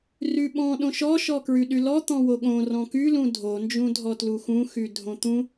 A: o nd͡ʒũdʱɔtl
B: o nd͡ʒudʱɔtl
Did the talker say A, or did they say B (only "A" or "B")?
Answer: A